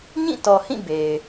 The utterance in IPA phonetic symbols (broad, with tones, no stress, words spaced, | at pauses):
ɲĩ˦˨tɔ˨hĩ˦˨ be˨ɪ̯